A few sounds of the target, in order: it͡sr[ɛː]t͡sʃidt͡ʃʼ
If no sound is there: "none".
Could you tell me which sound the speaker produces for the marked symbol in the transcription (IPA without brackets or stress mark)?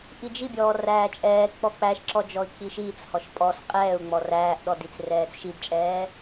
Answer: ɛː